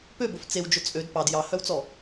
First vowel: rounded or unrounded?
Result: rounded